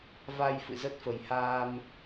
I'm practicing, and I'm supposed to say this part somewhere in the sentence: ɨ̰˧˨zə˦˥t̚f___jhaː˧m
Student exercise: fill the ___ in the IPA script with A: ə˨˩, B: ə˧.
A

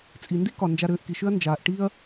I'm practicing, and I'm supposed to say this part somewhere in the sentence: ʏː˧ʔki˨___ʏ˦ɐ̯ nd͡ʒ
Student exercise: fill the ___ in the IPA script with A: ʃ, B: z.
A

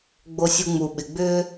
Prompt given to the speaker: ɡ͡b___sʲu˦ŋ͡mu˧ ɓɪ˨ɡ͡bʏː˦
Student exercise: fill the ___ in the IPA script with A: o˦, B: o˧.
A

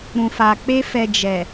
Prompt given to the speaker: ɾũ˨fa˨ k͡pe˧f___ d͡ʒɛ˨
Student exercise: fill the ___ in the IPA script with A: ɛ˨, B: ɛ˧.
A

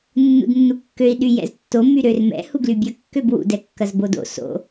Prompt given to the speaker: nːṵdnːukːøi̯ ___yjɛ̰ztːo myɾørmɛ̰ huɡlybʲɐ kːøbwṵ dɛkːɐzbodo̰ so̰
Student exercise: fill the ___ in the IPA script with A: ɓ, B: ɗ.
B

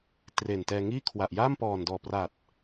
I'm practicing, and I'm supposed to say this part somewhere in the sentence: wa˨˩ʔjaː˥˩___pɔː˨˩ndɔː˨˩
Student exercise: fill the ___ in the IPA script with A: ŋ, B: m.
B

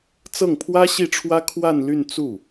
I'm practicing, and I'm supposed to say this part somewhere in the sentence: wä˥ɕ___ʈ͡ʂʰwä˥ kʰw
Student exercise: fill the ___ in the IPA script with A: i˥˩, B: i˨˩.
A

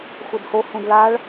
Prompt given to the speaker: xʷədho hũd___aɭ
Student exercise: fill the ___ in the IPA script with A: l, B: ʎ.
A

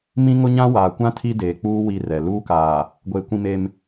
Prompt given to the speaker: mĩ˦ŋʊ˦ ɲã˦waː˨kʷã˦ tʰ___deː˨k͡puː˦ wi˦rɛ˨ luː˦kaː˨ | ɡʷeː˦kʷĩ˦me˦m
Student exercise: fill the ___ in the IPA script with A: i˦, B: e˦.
A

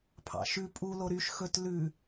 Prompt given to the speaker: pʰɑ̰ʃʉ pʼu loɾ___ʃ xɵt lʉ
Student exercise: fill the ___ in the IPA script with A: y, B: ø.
A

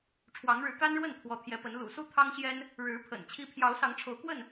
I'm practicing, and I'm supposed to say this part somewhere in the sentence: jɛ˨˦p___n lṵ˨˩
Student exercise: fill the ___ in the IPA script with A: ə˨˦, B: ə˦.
A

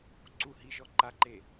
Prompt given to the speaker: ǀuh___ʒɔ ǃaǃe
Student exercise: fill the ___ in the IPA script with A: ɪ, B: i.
B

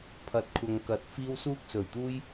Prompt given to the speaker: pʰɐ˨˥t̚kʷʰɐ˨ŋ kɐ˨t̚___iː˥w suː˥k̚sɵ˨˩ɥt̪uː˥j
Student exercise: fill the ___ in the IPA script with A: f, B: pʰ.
A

